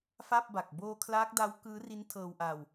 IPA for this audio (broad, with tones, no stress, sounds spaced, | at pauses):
f a˥˩ p̚ b a˨˩ k̚ b oː˧ kʰ l aː˦˥ k̚ d a˦˥ w k ɯː˦˥ r i˦˥ n tʰ ɤː˧ w ʔ a˧ w